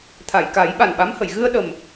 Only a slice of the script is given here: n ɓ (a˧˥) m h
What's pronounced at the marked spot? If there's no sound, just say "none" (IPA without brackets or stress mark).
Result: a˧˥